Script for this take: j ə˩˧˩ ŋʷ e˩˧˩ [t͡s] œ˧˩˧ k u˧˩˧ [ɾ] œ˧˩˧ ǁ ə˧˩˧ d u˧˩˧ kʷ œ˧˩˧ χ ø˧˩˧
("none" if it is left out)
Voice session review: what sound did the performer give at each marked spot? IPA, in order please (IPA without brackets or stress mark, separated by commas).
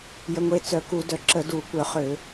t͡s, d